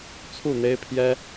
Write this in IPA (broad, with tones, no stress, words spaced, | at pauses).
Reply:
t͡sʰu˥˨n̪e˦ɪ̯pʰjɛ˦